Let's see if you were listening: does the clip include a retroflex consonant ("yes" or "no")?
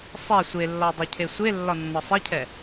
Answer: no